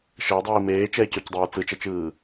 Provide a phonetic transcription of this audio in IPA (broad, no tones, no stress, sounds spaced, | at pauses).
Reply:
ʃ ʌ o̯ dˤ iː m eː t͡ʃ ɛ e̯ c o c dˤ ɛː t͡s ɯ t͡ʃ ɛ t͡ʃ ɯː